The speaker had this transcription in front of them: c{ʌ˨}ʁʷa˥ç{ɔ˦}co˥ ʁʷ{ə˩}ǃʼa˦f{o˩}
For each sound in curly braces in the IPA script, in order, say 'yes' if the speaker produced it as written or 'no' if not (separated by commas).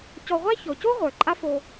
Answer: no, no, no, no